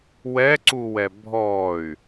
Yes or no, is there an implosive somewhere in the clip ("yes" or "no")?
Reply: no